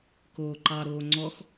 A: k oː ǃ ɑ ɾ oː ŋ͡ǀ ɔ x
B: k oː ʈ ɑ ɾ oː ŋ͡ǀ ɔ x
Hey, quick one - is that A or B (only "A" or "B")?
A